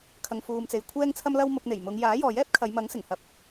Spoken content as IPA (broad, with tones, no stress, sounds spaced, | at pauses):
kʰ ɐ˨ ŋ f uː˨ m t͡s e˨ j kʷʰ ɛː˥ ŋ t͡sʰ ɐ˥ m l ɐ˥ w m ʊ˧ k̚ n̪ e˨˩ j m ʊ˨˧ ŋ j aː˨˥ j ɔː˨ j ɛː˥ p̚ kʰ ɐ˨˧ j m ɐ˨˥ ŋ s ɪ˨˩ ŋ h ɐ˧ p̚